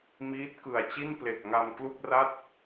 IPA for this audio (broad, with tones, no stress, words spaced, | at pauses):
miː˦˥t̚kɯ˨˩a̯ t͡ɕi˥˩nple˨˩k̚ ŋa˧m klu˥˩k̚ra˥˩t̚